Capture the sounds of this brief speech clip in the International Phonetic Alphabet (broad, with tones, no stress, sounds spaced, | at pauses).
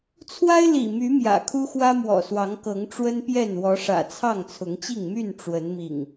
t͡sʰ w a˦ ɪ̯ l ḭ˨˩ m y˨˦ m j ä̰˨˩ kʰ u˦ x w ä˦ m w ɔ̰˨˩ s w ɑ˨˦ ŋ k ɤ˨˦ ŋ ʈ͡ʂ w ə˦ n p j ɛ˥˨ n w ɔ˨˦ ʂ ä̰˨˩ t͡sʰ ɑ˥˨ ŋ t͡sʰ ʊ˨˦ ŋ t͡ɕ i˥˨ ŋ m y˥˨ n ʈ͡ʂ w ə˨˦ n m ḭ˨˩ ŋ